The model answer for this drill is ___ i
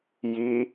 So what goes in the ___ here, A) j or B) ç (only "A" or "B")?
A